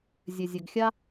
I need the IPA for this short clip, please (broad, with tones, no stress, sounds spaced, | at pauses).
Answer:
zʲ ø˨ zʲ ø˨ ɡ xʲ a˦